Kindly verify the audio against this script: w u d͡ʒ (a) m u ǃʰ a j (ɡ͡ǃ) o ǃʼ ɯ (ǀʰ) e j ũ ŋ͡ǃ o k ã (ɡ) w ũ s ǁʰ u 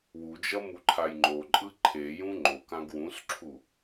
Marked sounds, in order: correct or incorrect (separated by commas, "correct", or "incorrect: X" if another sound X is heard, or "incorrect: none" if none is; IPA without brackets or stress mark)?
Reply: incorrect: ʌ, incorrect: ŋ͡ǃ, incorrect: ǃʰ, correct